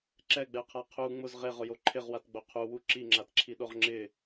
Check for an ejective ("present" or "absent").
absent